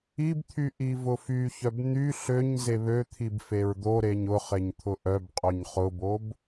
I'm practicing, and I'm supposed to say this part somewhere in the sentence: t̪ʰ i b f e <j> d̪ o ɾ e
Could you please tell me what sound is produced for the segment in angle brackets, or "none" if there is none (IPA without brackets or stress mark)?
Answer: ɹ